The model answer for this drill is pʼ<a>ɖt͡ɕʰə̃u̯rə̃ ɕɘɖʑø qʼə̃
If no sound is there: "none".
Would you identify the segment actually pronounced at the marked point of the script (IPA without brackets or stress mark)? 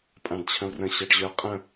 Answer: ã